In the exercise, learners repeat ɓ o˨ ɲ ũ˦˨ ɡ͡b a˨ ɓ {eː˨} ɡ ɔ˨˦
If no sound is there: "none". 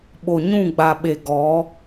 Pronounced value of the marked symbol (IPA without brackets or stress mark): e˨